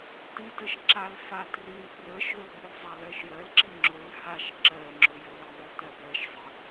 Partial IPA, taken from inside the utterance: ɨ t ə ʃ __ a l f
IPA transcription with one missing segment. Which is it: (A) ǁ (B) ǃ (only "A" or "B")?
A